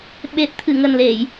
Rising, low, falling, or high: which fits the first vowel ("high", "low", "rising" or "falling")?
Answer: low